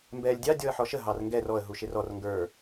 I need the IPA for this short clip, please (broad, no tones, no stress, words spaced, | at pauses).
mbɛːlʲdʲɑ dʲɔə̯ħɔʃə ɦɑrŋɡɛr ɔə̯ ɦuʃɪrɔr ŋɡə˞